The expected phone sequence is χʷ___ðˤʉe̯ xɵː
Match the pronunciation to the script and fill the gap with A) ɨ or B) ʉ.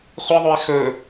A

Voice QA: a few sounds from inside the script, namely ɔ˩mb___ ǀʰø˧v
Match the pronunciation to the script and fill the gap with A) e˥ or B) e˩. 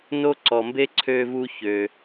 A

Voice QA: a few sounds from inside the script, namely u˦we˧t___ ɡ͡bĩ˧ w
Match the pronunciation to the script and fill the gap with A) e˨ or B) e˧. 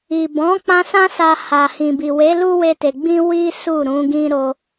A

